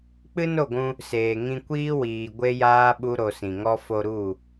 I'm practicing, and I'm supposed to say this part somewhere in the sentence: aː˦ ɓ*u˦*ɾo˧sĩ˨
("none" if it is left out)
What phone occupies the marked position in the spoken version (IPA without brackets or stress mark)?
u˦